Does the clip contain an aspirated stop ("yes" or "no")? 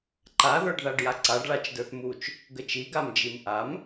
no